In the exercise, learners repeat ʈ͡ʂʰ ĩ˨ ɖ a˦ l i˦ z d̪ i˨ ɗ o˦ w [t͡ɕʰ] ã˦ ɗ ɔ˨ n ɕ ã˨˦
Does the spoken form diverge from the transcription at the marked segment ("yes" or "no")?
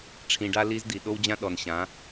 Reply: yes